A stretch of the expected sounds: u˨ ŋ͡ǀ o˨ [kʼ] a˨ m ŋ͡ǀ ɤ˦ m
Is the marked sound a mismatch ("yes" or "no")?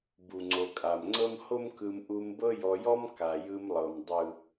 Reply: no